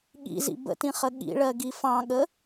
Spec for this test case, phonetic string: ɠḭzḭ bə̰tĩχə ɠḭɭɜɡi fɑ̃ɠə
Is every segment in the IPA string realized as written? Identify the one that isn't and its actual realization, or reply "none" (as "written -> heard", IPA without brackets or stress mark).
none